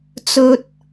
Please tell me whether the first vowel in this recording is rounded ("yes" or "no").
yes